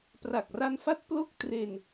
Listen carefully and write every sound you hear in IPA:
p r a˨˩ k̚ r a˧ n f a˦˥ t̚ p l o˥˩ k̚ t r e˧ n

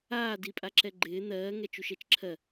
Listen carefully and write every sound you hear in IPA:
aː d i pʼ a ǁ ɛ ɡ͡ǃ ɪː n̪ ɜː ŋ ɛ t͡ʃ u ʃ ɛ t͡ʃ ǁʰ ɜ

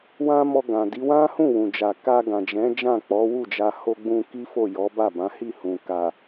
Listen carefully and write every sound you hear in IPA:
w ã˦ m ɔ˧ ɡ ã˨ d i˨˦ w ã˦ h ũ˦˨ w ũ˨ d͡ʒ a˨ k a˧ ɡ ã˨ d͡ʒ ɛ̃˨˦ d͡ʒ ã˦˨ k͡p ɔ˨˦ w u˦˨ d͡ʒ a˧ h o˧ ɡ͡b ũ˧ k i˦ f o˦˨ j ɔ˨˦ b a˦˨ b ã˨˦ h i˦˨ h ũ˨ k a˨

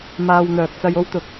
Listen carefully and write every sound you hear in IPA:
m aː˨ w n̪ œː˨ k̚ t͡s ɐ˧ j o˥ w t̪ ʊ˨ k̚

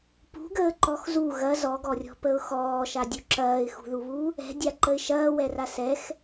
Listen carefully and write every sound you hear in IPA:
p ṳ ɡ əː ǃ ɔ x z u ɣ ɐ z ɔ ɡ ɔ rʲ ɔ̤ p ə ʊ̯ x ɔː ʃ a dʲ u ǁ ɐː ɪ̯ x ṳ ð u β u | ɛ̤ dʲ a ǃ ə ɪ̯ ʃ ɐː w ɛ r a s ɛ x

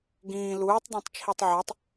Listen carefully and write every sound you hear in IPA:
ɡ ĩː l uː tˤ dˤ ẽ tˤ t͡ʃʰ i tˤ ʕ ɒ tˤ

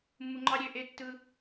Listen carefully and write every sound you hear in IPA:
mː u˧ ŋ͡ǃ ɑ˦ ɾʲ øː˧ ʔ e˧ tː ɯ˧

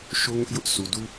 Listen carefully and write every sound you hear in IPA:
ʃ o˦ ŋ ʊ˦ ʔ j ʊ˦ ʔ s u˨ d u˦

